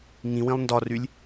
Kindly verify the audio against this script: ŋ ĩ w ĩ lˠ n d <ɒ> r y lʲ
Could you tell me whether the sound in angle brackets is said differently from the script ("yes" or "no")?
no